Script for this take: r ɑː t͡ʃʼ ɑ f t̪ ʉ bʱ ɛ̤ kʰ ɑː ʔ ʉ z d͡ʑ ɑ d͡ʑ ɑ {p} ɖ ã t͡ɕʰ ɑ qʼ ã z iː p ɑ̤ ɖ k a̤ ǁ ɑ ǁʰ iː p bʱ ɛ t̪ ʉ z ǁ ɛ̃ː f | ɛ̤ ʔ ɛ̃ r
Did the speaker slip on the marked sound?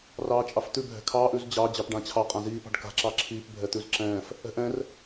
no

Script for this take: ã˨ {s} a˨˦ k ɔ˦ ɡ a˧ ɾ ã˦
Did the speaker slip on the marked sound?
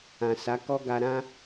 no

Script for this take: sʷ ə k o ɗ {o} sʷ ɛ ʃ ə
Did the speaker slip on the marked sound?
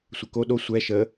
no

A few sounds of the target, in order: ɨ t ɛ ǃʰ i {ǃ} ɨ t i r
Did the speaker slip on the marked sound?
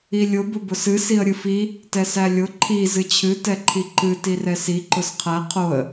no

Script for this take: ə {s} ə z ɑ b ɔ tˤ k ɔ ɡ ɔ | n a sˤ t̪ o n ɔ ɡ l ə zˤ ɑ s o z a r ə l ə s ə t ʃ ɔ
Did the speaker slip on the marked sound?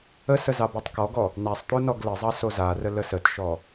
no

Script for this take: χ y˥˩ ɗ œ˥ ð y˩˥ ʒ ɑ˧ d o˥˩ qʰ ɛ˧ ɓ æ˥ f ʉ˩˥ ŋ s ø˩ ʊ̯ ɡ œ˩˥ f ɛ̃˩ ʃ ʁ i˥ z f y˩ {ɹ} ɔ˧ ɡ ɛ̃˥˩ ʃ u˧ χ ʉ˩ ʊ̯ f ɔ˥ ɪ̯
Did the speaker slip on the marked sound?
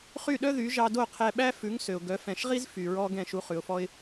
no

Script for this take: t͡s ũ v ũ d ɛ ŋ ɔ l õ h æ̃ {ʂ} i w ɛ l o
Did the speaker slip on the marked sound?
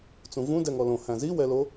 yes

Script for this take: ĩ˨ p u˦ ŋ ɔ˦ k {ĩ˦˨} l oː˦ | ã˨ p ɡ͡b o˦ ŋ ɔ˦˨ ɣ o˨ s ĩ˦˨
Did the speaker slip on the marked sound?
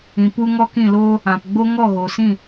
no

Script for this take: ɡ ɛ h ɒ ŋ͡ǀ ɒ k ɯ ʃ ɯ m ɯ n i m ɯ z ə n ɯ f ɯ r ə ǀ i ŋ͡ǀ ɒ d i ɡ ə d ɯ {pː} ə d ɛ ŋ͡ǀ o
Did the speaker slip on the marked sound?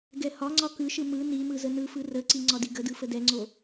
yes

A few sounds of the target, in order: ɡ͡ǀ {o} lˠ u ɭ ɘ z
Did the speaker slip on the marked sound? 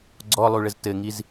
yes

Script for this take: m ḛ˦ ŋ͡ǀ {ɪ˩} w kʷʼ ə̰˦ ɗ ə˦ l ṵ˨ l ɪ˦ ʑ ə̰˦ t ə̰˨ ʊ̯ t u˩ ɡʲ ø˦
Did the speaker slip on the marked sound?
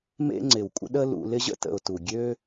no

